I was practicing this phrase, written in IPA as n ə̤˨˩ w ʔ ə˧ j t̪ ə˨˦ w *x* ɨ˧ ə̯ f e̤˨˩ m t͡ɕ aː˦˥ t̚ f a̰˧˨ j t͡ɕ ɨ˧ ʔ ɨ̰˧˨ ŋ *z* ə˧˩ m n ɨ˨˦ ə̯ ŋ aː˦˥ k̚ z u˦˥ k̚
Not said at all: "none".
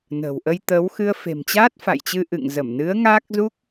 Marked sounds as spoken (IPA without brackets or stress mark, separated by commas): x, z